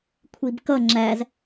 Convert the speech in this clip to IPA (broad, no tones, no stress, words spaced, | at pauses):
kʷʰibkʌ ŋ͡ǁæz